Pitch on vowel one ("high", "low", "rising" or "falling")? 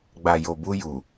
low